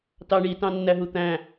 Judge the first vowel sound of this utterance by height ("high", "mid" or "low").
low